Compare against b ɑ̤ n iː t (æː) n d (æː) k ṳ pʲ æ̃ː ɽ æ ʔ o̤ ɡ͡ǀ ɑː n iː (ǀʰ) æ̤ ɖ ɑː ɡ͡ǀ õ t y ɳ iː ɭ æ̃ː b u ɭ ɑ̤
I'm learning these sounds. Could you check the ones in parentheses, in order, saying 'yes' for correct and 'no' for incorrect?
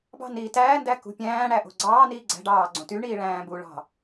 yes, no, no

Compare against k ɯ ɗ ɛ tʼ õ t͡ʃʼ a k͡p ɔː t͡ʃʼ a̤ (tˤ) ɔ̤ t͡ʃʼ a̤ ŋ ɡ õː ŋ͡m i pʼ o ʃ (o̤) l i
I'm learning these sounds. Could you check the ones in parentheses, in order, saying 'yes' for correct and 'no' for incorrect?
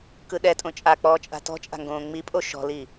no, no

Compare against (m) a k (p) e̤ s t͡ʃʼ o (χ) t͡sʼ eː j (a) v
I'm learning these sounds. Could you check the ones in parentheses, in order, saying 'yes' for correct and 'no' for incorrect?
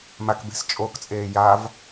yes, no, no, yes

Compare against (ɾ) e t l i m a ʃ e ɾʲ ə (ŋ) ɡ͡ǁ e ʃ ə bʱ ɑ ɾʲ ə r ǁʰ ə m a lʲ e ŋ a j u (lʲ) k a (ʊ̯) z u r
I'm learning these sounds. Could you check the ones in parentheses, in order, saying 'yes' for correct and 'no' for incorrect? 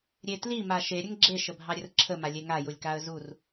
no, yes, yes, no

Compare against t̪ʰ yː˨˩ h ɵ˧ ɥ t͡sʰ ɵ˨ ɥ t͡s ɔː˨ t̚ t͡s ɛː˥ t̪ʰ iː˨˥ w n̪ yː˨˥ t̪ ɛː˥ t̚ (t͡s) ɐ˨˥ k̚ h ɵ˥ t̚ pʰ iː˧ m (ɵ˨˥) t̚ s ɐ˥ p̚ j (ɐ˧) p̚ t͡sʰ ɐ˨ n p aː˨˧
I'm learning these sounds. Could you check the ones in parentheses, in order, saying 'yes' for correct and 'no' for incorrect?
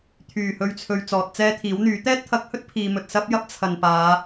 no, no, no

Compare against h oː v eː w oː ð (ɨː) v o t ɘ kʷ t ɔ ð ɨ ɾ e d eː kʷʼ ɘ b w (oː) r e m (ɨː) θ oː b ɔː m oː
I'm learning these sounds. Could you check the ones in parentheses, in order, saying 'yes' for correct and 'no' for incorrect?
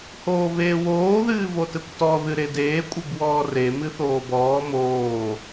yes, no, no

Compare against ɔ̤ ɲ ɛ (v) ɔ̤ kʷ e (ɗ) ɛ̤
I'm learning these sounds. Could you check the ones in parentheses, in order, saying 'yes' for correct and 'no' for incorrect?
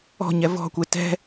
yes, no

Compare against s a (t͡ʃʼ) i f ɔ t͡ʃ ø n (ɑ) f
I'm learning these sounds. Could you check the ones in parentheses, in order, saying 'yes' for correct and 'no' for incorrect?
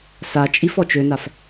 yes, no

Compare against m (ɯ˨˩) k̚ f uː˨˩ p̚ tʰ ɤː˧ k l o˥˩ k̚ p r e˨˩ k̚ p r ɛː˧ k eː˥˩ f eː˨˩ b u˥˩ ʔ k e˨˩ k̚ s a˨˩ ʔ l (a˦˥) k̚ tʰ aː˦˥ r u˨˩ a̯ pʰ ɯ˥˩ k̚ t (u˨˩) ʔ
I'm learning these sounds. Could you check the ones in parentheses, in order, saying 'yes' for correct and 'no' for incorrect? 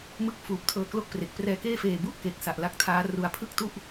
no, yes, no

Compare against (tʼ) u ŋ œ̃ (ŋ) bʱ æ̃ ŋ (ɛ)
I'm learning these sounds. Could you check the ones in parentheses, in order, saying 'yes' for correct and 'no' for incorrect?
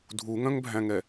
no, yes, yes

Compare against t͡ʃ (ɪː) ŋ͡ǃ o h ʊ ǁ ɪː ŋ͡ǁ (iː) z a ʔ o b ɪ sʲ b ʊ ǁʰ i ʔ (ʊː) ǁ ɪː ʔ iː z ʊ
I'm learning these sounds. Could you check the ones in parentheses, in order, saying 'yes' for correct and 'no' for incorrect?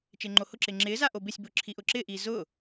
yes, no, yes

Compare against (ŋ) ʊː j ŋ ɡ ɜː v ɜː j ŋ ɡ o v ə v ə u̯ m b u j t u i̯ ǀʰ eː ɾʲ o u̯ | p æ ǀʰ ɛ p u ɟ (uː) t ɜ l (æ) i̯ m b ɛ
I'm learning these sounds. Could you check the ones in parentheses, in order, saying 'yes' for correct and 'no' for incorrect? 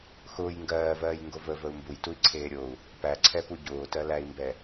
no, no, yes

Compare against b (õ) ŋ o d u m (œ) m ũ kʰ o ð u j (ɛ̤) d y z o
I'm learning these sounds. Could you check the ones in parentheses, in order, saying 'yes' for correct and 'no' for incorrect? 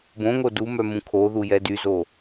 yes, yes, no

